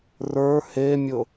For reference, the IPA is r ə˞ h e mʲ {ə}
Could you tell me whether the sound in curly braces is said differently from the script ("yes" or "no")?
yes